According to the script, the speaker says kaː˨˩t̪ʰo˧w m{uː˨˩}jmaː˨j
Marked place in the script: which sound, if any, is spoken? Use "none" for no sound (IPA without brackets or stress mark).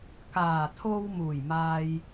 uː˨˩